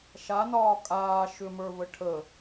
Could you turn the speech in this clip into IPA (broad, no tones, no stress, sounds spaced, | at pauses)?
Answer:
ʃ a n ɒː kʼ aː ʃ ʏ m ə˞ v ə ʈʰ ə